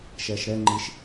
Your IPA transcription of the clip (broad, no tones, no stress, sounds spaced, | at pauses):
ʃ ɛː ʃ ɾ ɛ ŋ͡ǃ i ʃ